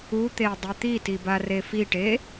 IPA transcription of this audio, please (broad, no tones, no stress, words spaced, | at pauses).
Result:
ut̪e dˤit̪iti barefiʈe